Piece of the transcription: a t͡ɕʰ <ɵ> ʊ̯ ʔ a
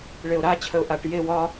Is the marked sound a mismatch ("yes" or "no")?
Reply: yes